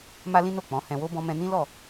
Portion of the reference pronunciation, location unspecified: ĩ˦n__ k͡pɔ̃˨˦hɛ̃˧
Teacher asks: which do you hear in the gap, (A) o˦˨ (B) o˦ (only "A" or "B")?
A